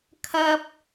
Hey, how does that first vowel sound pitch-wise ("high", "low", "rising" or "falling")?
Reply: high